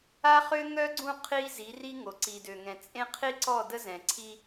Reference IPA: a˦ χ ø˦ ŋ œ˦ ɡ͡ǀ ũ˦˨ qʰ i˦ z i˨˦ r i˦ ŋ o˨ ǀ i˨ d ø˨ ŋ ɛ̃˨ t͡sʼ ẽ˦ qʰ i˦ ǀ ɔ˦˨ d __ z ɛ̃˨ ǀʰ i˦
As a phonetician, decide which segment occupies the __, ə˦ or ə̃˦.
ə˦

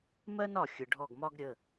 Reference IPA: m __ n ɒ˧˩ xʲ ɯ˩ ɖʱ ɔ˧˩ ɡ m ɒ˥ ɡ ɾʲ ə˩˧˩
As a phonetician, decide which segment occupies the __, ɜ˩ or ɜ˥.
ɜ˥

